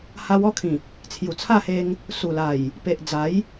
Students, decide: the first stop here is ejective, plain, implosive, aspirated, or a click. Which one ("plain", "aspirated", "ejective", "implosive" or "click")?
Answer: aspirated